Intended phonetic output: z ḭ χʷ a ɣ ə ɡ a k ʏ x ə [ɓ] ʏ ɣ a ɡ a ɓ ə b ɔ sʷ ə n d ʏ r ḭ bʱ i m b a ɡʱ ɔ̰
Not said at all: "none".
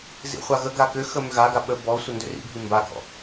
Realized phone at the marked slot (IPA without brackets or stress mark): m